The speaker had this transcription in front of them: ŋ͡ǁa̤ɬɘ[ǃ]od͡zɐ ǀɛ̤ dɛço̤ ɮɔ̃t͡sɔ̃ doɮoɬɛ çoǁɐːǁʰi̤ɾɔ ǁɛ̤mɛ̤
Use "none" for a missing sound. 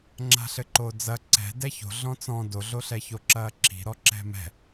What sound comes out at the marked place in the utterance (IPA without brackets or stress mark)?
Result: ǃ